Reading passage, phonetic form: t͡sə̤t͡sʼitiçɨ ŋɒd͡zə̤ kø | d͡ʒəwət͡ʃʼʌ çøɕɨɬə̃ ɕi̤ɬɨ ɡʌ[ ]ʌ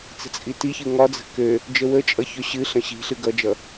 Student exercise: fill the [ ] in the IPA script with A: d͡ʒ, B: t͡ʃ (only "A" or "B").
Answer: A